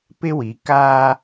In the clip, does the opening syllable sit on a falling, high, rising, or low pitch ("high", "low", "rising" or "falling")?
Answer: high